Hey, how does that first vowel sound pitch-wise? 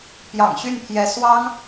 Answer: low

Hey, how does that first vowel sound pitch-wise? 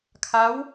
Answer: rising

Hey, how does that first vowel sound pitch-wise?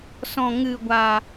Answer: low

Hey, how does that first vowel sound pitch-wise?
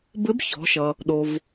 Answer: rising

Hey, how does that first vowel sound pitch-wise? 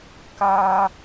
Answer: high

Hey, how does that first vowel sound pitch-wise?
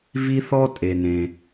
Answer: high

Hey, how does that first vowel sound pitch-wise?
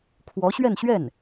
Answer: rising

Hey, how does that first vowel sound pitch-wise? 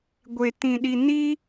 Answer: low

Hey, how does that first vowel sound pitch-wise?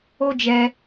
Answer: high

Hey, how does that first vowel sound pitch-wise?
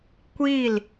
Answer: falling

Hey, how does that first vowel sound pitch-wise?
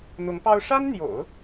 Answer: rising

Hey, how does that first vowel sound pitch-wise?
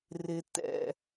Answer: low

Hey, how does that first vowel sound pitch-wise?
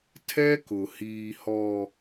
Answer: high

